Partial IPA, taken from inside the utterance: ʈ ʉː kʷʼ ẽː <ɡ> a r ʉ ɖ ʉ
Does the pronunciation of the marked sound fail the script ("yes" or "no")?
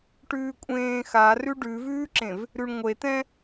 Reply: yes